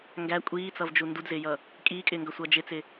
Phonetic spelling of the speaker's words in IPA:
ŋɡæ kʷʼiːt͡sʌvd͡ʒu ndudzɪːjʌ | kʼiːkʼɪːŋɡʌsʷʌː d͡ʒɪt͡sɪ

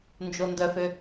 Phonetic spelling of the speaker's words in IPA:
nd͡ʒondœfø

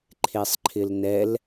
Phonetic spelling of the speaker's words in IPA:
ǃʰesˤǃʰɪlnɛl

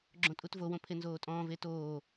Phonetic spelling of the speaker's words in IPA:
ɡ͡ǁõtʼutvowõ pʰenzoːtʼɔ̃ː vetoː

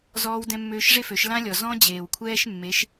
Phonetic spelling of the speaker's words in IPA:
zɔː˦wdɛ̃˦mːøː˦ʃ ʐe˦fø˨˦ʃ lã˦lʲɔ˨ zɔ̃˦ d͡ʑeː˨wkʷʰɛː˦ʃ mːe˨˦ʃ

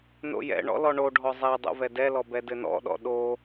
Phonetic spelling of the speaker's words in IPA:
no̰jɛ̰ɳɔ̰ lɔɳoɖʱɔ zˤɛ dˤo̰vɛdɛlɔ bɛdɘnɔ̰ɗɔ̰ ɗo

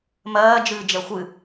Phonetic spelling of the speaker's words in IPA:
mɜːd͡ʒɨːd͡ʒɛ xʷɨ

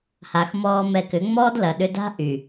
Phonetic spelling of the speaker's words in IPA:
ha˨xmɔː˧ mɛ˧kʏ˨˦ ŋ͡mɔː˦dlɐ˨ɗʏ˧da̤˦ ʔy˨

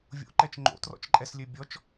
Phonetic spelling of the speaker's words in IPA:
vʲo̰ǃɛt͡ʃ ŋ͡ǃo̰trɔ̰t͡ʃǃʼɛslʲø bʲɔt͡ʃ

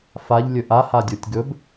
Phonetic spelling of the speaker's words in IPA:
faʎ lʲɵʔa hadʲotʲɡɵb

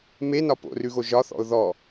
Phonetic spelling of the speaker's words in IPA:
menɒ po̰rʉɣo ʒɒθɔ̰ʊ̯ ðɔ

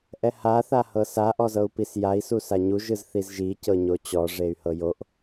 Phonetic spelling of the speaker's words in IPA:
ʔɛha θahɤsa ʔɔzɤu̯pisjai̯ susaɲu ʒɯzθizʒi cɤɲot͡ɕɔ ʐey̯hɤjoʔ

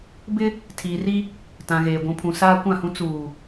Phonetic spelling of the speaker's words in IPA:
bɪ˦ | tʰiː˨ri˦ | tã˨ɣeː˨ ɡʷũ˨pʰũ˨ saː˦kʷã˦˨hũ˦ t͡suː˨

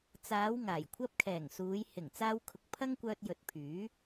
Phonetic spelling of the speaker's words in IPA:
t͡saː˨˧w ŋaː˨˩jkʷʰɐ˥p̚ kʰɛː˨˩ŋsuː˨˧j hɪ˨˩ŋ t͡saː˧wkʰʊ˨˥k̚ pʰɐ˥ŋkʷœː˧t̚ jɵ˨˥t̚pʰyː˨˥

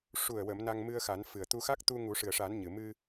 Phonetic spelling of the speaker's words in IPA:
ʂu˨˩ə̯wə˨˩˨m na˧ŋmɨ˧ə̯xa˨˩˦n fɨ˨˩ə̯t̪u˧xa˦˥k̚ t̪u˧ ŋu˨˩˦ʂɨ˨˩ə̯ʂa˨˩˦n ɲɨ˨˩ mɨ˧

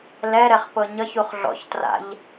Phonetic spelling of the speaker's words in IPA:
lɛɾɛχ pɤɲʌçuχ ɮɔ̰çtra̰ʎ

